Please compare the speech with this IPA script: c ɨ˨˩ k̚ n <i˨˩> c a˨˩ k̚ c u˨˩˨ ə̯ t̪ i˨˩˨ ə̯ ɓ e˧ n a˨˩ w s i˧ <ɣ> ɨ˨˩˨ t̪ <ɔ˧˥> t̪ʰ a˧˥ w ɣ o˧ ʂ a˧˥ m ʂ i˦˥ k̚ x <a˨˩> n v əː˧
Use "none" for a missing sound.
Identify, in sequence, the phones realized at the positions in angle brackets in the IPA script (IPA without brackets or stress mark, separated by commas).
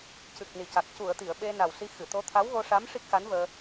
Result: i˨˩, x, o˧˥, a˧˥